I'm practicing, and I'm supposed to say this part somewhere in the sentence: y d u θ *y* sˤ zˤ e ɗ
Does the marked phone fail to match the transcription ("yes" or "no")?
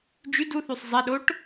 no